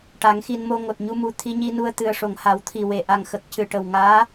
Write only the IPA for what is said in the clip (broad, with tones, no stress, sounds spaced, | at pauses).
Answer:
ʈ a˨˩˦ ŋ x i˧ n m o˧ ŋ o˨˩ t̚ ɲ u˧ m u˨˩ t̪ʰ i˧ ɲ i˧ n u˧ ə̯ t̪ ɨ˨˩ ə̯ ʂ o˨˩ ŋ h a˨˩˦ w t̪ʰ i˨˩ w e˨˩ ʔ a˨˩ ŋ x ə˨˩ k̚ c ɨ˨˩˨ ʈ ə˨˩ w ŋ aː˧˥